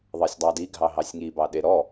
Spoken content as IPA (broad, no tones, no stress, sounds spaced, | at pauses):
ðˤ ɑ sʲ dˤ ɑ d i ɡʱ ɑ ɦ ɑ sʲ ŋ i b ɑ ɗ e ɾ ɔ